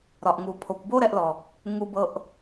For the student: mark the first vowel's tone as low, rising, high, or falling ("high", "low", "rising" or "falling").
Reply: low